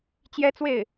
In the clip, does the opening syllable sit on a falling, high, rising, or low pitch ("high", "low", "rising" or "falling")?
high